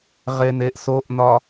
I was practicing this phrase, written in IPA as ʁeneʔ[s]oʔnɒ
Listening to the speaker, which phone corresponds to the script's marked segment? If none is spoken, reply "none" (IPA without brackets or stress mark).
s